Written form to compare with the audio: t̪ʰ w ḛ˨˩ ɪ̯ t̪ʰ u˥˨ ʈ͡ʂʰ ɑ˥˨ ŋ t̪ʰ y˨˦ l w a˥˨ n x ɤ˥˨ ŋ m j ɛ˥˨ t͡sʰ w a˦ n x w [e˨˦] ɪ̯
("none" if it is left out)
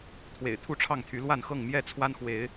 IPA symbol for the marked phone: e˨˦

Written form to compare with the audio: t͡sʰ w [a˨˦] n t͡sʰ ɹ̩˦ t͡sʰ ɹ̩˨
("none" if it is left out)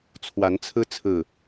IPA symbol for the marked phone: a˨˦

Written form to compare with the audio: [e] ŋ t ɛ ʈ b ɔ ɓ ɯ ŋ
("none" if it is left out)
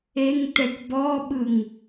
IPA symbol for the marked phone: e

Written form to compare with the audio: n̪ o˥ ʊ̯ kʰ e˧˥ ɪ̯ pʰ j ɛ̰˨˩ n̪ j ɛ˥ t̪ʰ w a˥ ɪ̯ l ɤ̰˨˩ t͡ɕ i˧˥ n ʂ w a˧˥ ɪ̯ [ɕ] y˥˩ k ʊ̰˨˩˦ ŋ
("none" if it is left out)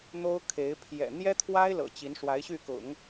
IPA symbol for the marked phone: ɕ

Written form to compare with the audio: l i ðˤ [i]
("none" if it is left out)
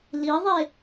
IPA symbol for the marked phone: e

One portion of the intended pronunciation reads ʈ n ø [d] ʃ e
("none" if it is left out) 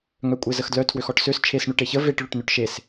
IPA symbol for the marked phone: ʈ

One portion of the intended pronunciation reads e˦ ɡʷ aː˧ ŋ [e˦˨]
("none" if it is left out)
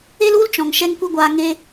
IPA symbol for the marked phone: e˦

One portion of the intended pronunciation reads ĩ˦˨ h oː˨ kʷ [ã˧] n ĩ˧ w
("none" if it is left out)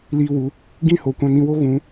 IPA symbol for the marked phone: ã˧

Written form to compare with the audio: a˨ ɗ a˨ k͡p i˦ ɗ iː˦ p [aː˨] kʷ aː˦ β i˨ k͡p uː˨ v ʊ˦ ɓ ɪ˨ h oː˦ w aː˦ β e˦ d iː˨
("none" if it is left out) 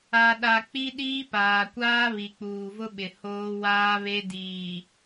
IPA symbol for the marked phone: aː˨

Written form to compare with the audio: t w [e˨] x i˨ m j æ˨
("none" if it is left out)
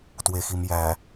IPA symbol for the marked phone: e˨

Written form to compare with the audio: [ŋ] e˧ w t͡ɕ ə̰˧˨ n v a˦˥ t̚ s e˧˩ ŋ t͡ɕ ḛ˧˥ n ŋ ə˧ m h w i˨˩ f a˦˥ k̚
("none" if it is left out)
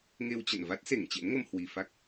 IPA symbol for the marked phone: ŋ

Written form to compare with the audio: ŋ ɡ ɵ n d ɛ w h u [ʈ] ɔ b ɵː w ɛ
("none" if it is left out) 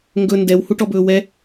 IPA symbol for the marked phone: ʈ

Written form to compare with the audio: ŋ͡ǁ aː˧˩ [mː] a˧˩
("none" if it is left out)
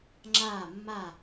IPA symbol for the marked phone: mː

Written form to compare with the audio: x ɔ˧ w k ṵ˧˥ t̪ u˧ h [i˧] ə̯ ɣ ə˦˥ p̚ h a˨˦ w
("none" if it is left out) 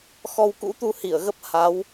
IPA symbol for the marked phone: i˧˩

